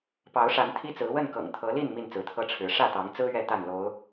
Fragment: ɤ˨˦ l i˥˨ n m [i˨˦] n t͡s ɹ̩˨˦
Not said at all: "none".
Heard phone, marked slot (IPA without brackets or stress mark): i˥˨